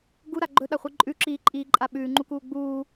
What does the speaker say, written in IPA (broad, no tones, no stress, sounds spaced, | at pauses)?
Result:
ɡ u ɾ a ɡ͡ǃ ɵ ɗ a χʷ i ǃʼ ʉ ǁ iː ǃʼ iː ǃʼ a ɓ ʉː ŋ͡ǃ u k uː ɡ͡b uː